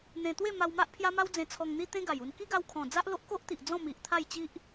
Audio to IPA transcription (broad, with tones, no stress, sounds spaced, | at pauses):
n̪ ẽ˧ t̪ w e˥˧ m a˧ w m a˦ ʔ pʰ j a˦ m a˦ w d͡z ẽ˧ t͡sʰ ɔ˧ ŋ n̪ i˦ t̪ ẽ˦ ɡ a˨˩ j u˧ n k i˦ ɡ a˧ w kʰ ɔ̃˨˩ d͡z a˦ ʔ l o˦ ʔ k o˦ ʔ t̪ i˨ ʔ d͡z ɔ̃˥˧ m i˨ ʔ t̪ʰ a˥˧ j t͡ɕ i˦ ʔ